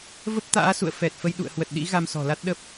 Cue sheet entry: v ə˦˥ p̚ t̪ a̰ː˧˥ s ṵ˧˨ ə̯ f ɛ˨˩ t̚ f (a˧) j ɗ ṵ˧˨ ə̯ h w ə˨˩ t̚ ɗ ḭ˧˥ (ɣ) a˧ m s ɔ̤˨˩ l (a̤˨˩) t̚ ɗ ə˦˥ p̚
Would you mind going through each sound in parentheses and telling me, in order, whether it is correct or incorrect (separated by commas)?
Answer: incorrect, correct, incorrect